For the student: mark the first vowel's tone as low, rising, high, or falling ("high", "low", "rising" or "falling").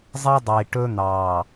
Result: high